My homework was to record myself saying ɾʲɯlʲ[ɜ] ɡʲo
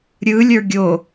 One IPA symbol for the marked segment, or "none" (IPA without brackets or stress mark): ə˞